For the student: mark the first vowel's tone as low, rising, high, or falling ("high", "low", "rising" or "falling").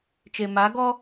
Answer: low